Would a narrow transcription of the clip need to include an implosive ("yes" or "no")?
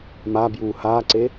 no